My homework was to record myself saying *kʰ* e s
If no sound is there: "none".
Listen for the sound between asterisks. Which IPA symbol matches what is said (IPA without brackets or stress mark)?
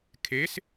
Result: kʰ